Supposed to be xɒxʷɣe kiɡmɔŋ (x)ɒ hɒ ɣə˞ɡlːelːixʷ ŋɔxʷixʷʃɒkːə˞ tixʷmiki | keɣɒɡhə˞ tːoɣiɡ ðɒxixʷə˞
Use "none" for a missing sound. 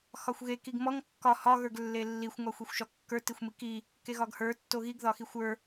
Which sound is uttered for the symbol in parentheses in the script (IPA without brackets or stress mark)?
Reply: kː